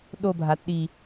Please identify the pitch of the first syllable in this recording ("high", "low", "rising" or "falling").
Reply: falling